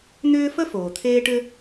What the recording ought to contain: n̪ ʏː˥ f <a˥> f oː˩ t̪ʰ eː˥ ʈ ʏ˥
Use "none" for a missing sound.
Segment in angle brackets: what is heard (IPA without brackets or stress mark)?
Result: ə˥